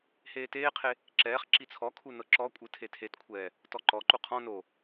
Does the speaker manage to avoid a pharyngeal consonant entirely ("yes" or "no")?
yes